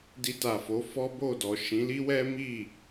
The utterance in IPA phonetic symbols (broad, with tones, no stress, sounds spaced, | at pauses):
d i˧ t a˨ f o˨˦ f ɔ˦ b o˦˨ d ɔ˨ ʃ ĩ˨˦ l i˦ w ɛ˦ m i˦˨